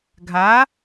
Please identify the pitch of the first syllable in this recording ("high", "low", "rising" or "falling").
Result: rising